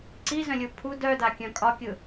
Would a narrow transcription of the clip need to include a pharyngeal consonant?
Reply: no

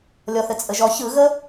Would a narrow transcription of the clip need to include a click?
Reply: no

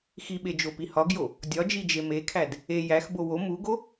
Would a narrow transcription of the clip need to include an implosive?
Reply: yes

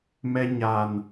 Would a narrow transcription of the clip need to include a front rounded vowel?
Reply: no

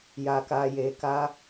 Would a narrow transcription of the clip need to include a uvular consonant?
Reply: no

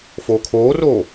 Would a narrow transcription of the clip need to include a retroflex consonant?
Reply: no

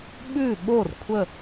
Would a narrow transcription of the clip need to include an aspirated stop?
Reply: yes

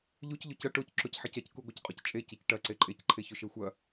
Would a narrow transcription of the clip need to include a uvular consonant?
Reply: yes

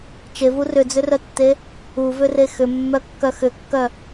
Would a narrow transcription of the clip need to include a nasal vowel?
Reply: no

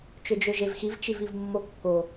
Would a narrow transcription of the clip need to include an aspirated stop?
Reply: no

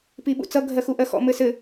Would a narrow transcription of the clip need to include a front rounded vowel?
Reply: no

